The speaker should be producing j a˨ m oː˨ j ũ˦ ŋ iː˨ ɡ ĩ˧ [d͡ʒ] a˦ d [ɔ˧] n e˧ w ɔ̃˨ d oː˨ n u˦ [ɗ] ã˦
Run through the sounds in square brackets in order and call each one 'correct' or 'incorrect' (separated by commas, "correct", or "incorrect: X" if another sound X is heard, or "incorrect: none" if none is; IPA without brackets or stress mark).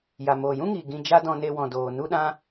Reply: correct, incorrect: ɔ̃˧, correct